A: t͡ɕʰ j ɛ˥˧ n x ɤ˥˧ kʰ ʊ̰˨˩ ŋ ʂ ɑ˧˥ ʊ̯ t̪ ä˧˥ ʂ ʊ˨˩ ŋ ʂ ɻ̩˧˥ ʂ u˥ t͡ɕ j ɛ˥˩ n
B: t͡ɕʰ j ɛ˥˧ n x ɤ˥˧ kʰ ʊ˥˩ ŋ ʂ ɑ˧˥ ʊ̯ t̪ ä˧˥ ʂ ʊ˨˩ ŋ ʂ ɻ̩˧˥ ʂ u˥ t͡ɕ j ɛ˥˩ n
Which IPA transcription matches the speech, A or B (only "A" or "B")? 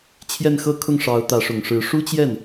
B